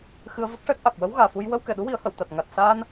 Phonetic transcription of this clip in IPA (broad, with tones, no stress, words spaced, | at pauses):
xɨ˧ə̯və˦˥k̚ʂɛ˦˥k̚ʔa˨˩k̚ wə˧˥wɣaː˨˩fu˧j wə˧wkɛ˨˩˨ɗu˧˥ wi˨˩˦ə̯hə˨˩˨wt̪a˨˩t̚ ŋa˨˩t̚saː˧n